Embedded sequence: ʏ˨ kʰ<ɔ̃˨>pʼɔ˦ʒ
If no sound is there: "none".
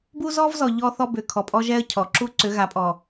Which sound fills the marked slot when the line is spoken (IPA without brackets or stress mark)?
ɔ˨